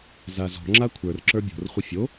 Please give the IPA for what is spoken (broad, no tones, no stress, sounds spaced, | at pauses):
z a z ɔ̤ ŋ͡ǁ a kʷʰ ə˞ r ǁ ə˞ bʲ o̤ r χʷ ɨ fʲ o